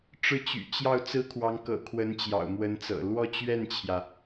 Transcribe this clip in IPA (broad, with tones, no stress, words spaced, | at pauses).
ʈ͡ʂɻ̩˥˩t͡ɕy̰˨˩ t͡ɕjɑ˥˩ʊ̯ t͡sɹ̩˥kʰwɑ˧˥ŋkɤ̰˨˩ kʰwə˧˥nt͡ɕjɑ̰˨˩ʊ̯mwə˧˥nt͡sɤ̰˨˩ lwɔ˥˧t͡ɕɥɛ˥˩nt͡ɕʰjä˩